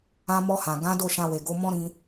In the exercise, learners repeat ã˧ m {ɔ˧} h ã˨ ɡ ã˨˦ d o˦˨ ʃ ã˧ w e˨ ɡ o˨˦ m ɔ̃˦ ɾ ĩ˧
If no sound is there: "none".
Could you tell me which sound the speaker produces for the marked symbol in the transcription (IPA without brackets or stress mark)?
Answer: ɔ˧